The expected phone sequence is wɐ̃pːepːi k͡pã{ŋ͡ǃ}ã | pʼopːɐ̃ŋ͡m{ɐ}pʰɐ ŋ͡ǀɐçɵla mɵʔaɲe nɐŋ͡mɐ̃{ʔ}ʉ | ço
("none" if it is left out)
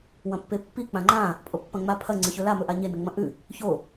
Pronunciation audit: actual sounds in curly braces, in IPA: ŋ͡ǃ, a, ʔ

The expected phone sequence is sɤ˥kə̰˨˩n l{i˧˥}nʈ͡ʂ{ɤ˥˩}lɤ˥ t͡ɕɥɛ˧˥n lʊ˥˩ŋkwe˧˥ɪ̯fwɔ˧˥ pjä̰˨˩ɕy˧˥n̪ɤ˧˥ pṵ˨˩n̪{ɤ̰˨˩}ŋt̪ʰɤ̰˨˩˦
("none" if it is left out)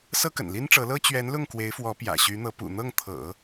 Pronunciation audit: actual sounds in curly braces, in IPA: i˥, ɤ˧˥, ɤ˥˩

